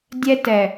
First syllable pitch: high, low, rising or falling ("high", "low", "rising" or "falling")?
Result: high